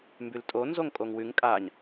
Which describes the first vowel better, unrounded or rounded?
rounded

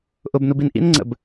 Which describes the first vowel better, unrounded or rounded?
rounded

